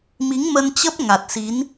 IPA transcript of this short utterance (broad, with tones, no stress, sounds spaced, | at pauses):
m i˨˦ ŋ m ə˧ n t͡ɕ ə˦˥ p̚ ŋ a˨˩ t̚ s i˨˦ n